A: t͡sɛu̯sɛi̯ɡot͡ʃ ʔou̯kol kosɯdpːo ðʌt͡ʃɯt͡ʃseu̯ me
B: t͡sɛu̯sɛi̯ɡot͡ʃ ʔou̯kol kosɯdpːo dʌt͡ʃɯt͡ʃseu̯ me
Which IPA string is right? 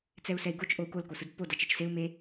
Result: B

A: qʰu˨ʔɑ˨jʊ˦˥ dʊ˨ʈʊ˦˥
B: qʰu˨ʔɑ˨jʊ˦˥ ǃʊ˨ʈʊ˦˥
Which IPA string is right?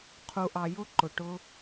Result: B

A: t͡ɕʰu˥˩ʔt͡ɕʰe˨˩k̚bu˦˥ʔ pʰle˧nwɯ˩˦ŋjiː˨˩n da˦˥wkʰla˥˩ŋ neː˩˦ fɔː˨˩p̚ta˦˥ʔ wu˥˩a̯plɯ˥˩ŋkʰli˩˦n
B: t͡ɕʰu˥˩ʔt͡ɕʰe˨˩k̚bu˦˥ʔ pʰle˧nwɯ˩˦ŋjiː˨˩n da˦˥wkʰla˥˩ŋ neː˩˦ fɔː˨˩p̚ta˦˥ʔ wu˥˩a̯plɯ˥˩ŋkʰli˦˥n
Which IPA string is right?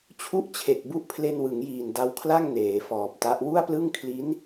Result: B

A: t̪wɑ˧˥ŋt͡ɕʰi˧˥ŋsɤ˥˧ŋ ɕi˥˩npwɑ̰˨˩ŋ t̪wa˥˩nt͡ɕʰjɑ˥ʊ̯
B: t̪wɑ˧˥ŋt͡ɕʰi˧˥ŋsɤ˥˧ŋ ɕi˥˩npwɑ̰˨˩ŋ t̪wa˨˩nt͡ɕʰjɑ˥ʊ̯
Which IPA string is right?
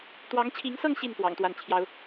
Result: A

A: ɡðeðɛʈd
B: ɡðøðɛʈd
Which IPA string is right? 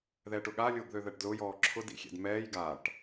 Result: B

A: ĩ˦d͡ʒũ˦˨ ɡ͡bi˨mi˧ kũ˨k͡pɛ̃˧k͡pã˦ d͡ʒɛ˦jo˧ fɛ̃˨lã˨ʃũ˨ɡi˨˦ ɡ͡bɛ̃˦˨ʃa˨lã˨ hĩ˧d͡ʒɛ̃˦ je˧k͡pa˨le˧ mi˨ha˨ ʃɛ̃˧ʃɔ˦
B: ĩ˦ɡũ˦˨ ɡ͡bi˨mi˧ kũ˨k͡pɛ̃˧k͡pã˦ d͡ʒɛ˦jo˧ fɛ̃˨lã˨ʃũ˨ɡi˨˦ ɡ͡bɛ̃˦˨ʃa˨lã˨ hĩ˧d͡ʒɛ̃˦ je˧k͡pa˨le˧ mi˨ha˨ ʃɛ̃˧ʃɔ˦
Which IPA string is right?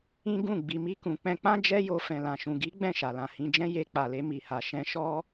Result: B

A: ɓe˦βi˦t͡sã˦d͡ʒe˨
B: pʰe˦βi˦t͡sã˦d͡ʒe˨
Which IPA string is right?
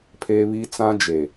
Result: B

